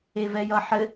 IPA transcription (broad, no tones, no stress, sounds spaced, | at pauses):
e v ɛ j ʌ ħ ɘ